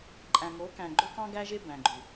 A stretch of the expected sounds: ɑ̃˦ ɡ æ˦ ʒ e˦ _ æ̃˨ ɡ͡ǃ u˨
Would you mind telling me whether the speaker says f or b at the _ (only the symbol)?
b